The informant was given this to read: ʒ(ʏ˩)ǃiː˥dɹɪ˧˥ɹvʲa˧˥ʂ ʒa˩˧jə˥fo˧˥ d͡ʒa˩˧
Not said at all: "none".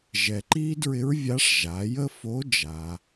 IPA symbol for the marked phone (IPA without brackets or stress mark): ɛ˩